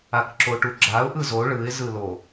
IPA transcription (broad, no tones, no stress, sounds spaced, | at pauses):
a k ǁ o ʈ u ɡ͡ǁ a ʊ̯ ʔ ɯ z o ɭ ɯ ɪ̯ z ɯ l o